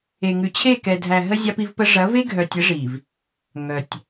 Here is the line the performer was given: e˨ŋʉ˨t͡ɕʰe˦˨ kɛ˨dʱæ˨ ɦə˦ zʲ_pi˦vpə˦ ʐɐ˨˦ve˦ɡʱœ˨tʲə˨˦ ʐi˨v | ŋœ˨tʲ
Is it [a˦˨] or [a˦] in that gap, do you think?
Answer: a˦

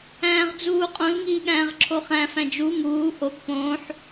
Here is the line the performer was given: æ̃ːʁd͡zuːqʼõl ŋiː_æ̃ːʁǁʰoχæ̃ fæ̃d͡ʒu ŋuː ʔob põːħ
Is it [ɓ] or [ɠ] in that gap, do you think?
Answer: ɠ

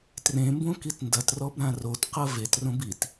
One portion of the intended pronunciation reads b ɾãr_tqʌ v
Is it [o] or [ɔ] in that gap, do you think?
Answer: o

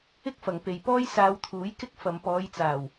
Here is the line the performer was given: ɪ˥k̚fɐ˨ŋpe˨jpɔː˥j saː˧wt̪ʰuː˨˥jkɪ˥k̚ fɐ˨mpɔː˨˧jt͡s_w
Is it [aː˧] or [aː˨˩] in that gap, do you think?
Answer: aː˨˩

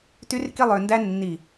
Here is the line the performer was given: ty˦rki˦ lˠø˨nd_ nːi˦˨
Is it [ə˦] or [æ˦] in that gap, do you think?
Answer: æ˦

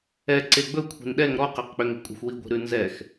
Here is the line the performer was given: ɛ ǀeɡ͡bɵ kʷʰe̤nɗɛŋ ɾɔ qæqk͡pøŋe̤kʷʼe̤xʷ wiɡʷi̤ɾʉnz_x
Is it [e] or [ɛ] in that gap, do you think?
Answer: ɛ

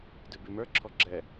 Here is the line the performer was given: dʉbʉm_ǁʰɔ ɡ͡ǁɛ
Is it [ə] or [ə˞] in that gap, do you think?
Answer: ə˞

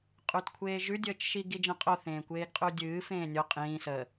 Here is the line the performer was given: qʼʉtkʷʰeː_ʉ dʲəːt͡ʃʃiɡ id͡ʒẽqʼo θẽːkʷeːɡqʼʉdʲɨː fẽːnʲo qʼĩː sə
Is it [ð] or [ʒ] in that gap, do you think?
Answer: ʒ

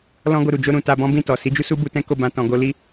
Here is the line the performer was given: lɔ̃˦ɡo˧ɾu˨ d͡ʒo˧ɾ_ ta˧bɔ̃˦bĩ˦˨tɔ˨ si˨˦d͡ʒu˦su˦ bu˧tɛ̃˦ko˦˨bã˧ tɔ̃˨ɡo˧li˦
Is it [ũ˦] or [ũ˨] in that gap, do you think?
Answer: ũ˨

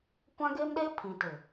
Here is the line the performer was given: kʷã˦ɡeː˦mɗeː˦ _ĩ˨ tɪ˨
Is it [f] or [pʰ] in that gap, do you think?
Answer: pʰ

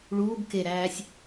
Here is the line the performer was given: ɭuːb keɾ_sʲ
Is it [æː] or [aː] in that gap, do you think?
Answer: æː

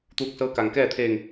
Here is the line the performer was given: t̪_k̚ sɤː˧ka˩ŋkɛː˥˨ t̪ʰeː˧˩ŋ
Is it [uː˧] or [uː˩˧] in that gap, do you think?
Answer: uː˧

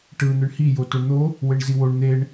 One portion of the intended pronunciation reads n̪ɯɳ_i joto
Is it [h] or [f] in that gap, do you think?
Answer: h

